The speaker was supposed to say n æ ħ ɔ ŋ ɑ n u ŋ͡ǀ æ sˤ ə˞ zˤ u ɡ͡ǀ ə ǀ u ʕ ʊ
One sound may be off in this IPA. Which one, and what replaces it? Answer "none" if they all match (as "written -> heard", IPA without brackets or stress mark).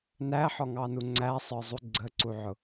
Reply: none